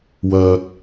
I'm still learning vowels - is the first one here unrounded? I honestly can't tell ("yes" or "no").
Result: no